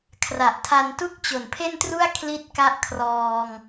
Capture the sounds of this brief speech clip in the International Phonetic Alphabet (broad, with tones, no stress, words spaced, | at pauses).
kʰra˨˩ʔtʰa˧ntu˥˩k̚ t͡ɕo˨˩npʰe˥˩ntru˥˩a̯ kʰli˥˩t̚ka˥˩ʔkʰrɔː˧ŋ